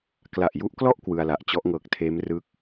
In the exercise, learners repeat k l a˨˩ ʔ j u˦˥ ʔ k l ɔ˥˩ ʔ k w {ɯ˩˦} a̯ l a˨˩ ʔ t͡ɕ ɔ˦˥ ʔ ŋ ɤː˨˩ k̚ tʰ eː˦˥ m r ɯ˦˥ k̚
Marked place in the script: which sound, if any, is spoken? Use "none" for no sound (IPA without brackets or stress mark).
ɯ˧